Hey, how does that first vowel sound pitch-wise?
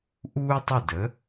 high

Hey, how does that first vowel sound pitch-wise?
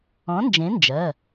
rising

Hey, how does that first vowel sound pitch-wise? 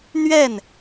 falling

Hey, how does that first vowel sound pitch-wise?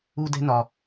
high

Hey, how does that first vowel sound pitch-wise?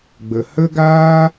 low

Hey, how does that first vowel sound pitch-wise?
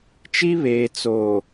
high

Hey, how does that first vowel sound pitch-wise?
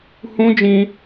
high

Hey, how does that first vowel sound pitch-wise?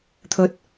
low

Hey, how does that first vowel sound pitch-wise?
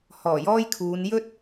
low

